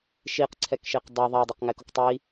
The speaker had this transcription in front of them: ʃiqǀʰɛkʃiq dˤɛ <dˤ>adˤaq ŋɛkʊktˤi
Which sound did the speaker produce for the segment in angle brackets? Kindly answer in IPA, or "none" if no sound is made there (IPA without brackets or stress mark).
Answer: ðˤ